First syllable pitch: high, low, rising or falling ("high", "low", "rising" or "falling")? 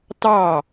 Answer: falling